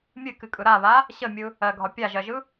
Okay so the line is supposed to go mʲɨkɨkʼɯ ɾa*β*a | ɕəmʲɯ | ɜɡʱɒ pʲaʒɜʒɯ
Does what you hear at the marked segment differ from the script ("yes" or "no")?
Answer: no